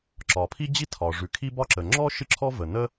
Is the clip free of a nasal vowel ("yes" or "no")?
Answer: yes